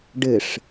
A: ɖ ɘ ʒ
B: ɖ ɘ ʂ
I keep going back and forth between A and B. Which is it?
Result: B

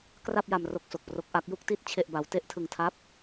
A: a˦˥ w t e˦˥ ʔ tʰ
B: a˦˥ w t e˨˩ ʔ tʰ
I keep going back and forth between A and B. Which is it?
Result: A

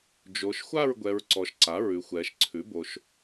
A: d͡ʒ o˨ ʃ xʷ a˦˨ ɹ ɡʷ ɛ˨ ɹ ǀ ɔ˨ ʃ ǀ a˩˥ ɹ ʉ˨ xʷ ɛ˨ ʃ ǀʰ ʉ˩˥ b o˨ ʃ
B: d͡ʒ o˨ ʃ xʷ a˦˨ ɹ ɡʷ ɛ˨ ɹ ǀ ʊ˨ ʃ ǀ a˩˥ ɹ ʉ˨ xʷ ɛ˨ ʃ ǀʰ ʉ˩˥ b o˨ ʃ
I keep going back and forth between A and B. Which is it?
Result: A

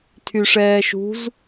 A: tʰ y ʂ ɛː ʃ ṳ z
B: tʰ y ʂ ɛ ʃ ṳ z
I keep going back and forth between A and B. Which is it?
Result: A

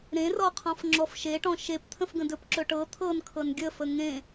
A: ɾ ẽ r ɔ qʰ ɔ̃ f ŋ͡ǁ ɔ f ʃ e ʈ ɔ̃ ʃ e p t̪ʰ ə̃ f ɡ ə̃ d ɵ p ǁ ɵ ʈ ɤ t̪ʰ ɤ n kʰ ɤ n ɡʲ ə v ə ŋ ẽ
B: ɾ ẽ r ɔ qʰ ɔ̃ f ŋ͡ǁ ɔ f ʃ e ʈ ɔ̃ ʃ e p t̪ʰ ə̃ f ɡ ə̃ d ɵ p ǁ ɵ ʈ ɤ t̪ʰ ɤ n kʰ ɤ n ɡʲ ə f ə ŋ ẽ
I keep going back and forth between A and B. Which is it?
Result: B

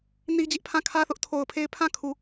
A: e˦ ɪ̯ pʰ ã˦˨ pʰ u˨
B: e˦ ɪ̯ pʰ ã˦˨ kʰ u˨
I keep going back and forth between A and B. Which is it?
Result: B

